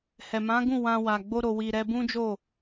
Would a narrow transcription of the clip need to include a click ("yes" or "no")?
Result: no